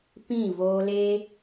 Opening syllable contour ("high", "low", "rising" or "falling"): falling